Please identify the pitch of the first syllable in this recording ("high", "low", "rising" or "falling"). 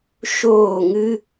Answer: falling